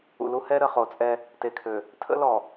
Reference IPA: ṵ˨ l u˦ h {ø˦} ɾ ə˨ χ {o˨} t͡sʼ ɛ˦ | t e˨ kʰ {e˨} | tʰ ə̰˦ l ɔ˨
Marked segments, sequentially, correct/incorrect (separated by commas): incorrect, correct, incorrect